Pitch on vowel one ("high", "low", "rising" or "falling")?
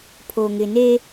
low